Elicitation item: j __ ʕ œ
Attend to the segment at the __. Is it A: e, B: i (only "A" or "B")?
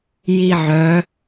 B